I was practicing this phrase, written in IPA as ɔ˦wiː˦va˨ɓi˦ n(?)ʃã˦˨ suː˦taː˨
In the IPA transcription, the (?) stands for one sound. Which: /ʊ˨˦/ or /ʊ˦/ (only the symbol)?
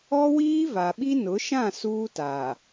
ʊ˨˦